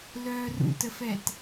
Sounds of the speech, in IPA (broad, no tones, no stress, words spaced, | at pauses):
lœːrṵtəfɛt